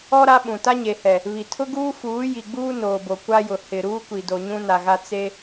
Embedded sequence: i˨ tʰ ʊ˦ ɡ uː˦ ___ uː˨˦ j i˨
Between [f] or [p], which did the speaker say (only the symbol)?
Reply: f